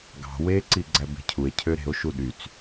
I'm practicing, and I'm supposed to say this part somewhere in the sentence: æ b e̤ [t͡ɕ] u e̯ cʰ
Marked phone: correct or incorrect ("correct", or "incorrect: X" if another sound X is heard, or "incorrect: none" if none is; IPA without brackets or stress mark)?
incorrect: cʰ